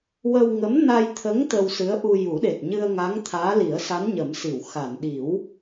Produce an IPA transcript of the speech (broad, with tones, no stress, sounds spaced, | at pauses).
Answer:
w ə˧ w ŋ ə˧˥ m n a˧ j t̪ʰ ə˧˥ ŋ t̪ ə˧ w s ɨ˧˥ ə̯ ʔ u˧ j u˨˩˦ ɗ e˨˩ t̚ ɲ ɨ˧ ə̯ ŋ a˧˥ ŋ t̪ʰ aː˧˥ l i˨˩˦ ə̯ s a˧˥ n ɲ ə˨˩˦ m s i˨˩˨ w x a˨˩˨ n ɗ i˨˩˦ w